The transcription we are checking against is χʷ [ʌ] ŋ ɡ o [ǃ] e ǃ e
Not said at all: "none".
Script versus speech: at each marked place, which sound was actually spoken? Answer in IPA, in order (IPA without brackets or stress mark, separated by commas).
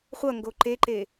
ʌ, ǃ